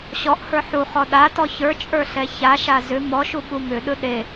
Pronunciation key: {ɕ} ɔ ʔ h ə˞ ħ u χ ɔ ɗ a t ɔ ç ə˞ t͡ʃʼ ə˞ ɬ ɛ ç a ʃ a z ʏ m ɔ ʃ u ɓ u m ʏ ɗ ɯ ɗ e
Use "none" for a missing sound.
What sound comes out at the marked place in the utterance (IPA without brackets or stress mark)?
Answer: ɕ